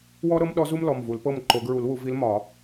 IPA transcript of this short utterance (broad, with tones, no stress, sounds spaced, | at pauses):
w ɔ˥ ɾ ɤ˥ m ɗ ɔ˧˥ z u˥ m l ɔ˩˧˩ m v u˨˩˦ l p ɤ˥˨ m ǃ o˨˩˦ ɡ ɹ u˨˩˦ l w u˨˩˦ v i˧˥ l m ɒ˨˩˦